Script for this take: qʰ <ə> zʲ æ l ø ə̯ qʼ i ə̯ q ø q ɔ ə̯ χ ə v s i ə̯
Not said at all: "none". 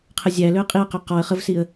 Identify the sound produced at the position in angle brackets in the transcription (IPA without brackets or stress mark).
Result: ə